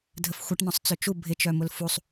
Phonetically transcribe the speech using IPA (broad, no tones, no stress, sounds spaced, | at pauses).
dʱ ə f xʷ ɐ ʈ n ɔ̃ sˤ t͡s ø t͡ʃ u bʱ ɪ t͡ʃ œ m ʊ l f u sˤ